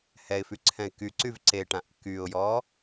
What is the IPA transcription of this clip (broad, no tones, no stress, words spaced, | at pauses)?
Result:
hɛɪ̯fyǀʰɛ̃ɪ̯ kyǀyv ǀeʈãʔ kyʊ̯jɔ